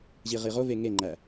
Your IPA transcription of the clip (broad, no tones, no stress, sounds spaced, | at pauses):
ʑ i ʁ i ʁ o v e ŋ e ŋ͡ǃ æ